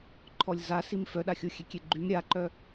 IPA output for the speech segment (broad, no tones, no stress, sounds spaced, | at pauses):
ǃʰ ɔ lʲ z a s i m f œ ɗ a xʲ o xʲ e kʲ e ɡ͡ǃ y m ɾʲ a ǃ œ